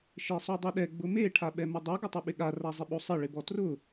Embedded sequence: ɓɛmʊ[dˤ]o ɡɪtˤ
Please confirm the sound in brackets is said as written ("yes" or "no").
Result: yes